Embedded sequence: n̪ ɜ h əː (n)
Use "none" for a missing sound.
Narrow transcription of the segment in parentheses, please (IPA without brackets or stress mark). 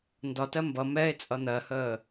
none